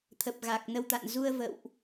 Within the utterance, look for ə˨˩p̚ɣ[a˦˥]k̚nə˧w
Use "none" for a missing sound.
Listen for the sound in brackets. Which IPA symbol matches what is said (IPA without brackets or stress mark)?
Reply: a˨˩